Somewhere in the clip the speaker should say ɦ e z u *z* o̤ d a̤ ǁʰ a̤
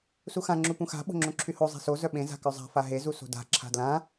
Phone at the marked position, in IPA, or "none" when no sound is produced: s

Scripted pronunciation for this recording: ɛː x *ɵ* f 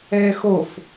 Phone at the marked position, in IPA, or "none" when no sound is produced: o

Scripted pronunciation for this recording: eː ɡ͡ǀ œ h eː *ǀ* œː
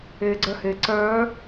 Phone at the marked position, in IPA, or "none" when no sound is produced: ǀ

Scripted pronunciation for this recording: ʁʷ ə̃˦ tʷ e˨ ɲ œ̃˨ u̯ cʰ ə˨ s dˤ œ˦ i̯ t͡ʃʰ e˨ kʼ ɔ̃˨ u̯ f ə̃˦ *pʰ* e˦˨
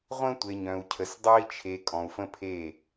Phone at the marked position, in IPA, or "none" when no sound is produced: pʰ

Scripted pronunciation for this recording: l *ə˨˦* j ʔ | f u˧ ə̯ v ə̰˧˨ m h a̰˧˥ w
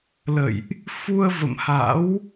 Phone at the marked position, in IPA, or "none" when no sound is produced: ə̰˧˨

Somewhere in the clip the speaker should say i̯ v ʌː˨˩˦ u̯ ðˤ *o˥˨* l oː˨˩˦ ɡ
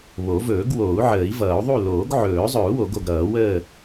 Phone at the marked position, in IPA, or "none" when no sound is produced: u˥˨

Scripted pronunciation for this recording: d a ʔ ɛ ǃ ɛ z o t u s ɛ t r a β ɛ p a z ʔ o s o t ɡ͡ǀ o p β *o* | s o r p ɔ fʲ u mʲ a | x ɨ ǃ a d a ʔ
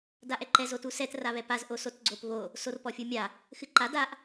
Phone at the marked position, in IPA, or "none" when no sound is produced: o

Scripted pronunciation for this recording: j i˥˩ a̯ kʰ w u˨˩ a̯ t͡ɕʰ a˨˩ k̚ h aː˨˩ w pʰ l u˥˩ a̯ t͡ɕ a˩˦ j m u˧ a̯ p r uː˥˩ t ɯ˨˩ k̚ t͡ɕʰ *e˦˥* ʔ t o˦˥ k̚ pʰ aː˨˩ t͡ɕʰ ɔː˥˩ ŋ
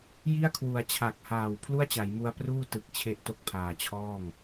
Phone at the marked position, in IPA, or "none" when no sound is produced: e˦˥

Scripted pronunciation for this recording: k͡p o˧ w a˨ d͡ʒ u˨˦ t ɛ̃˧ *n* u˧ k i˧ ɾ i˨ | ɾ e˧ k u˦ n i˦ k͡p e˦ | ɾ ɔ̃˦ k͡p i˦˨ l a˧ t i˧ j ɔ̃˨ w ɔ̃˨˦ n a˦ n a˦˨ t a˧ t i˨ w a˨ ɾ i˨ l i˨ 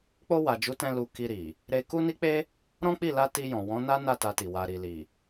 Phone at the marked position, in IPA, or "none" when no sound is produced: l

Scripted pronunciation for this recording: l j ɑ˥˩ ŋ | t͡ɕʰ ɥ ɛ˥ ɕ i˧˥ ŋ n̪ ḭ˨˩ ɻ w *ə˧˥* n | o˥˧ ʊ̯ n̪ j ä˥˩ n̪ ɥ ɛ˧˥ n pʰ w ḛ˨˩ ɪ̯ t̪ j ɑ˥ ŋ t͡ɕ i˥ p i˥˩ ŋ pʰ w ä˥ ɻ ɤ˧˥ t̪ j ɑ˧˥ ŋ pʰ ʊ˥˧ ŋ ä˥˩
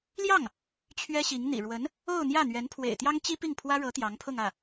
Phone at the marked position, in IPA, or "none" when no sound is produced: ə˧˥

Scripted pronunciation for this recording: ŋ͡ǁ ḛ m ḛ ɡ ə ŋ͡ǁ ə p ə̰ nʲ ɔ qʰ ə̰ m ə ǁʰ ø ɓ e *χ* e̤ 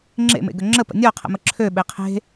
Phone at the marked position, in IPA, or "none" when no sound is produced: qʰ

